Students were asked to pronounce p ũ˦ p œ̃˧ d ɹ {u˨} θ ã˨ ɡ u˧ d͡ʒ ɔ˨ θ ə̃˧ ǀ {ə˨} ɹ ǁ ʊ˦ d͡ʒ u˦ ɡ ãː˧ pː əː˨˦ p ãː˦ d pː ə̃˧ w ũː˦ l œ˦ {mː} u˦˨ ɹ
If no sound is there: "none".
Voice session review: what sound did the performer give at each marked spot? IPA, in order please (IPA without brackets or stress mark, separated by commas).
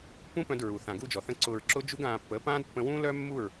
u˨, ʊ˨, mː